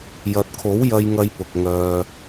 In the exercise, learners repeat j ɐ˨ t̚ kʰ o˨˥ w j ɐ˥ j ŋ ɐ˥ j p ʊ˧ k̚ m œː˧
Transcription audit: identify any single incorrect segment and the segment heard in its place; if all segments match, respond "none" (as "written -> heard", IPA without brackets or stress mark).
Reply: m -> ŋ